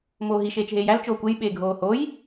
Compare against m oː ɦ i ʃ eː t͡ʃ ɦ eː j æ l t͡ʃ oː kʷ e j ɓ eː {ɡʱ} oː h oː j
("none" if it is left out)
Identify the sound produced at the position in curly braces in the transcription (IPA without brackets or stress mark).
ɡʱ